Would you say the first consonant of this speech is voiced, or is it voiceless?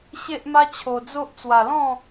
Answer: voiceless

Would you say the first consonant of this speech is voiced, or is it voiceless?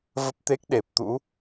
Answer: voiced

